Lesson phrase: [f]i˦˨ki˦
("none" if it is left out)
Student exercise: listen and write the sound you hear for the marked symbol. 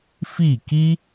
f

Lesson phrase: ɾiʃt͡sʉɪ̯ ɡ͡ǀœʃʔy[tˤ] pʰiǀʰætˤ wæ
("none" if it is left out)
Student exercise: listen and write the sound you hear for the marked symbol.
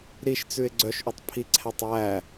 tˤ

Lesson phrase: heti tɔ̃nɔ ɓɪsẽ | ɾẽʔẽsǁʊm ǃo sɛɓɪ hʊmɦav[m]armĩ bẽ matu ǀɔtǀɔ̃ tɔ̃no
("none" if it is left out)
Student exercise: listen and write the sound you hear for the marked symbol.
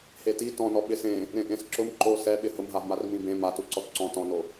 m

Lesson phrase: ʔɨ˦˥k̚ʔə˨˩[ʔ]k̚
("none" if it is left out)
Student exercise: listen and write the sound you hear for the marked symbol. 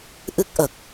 none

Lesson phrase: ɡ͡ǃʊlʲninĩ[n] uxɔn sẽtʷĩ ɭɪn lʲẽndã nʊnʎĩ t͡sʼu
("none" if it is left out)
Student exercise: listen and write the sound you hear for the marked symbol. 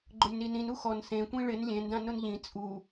n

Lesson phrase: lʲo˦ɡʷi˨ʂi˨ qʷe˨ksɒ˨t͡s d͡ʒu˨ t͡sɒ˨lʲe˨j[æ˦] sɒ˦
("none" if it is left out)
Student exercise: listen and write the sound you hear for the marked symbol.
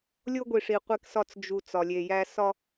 æ˦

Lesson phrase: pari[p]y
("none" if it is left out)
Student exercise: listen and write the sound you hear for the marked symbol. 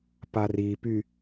p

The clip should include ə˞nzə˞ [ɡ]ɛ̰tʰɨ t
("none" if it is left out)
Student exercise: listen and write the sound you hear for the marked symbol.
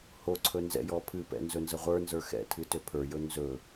x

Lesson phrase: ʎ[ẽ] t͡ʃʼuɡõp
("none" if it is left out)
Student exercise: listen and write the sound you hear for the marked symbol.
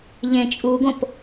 ẽ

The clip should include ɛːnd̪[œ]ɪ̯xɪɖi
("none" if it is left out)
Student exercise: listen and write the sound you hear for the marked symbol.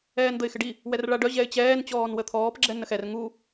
ə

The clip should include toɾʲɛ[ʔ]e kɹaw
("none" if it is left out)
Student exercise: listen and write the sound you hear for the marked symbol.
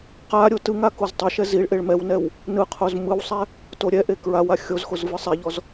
ʔ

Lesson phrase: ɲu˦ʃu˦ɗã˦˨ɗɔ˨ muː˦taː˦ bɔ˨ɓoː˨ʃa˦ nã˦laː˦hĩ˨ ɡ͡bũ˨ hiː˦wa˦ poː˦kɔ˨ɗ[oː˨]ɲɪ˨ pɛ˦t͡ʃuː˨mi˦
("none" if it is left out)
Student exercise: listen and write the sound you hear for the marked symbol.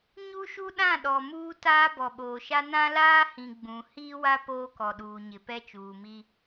uː˨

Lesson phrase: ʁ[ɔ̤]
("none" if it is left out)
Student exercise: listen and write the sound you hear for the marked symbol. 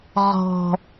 ɔ̤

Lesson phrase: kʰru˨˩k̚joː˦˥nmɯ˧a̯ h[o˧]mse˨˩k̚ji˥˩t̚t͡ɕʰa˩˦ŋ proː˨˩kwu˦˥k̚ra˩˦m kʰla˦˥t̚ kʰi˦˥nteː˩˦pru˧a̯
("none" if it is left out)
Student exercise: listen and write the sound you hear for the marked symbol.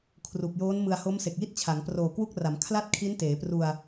o˦˥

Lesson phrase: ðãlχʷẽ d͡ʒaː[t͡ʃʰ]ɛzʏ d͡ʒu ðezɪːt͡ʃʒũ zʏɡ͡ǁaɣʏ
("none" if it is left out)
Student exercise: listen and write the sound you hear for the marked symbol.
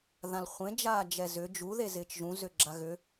d͡ʒ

